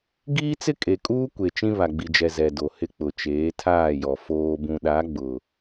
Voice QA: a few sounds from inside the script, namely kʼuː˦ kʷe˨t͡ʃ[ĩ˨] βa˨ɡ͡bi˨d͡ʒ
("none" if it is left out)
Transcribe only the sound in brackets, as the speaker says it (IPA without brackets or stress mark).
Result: ĩ˦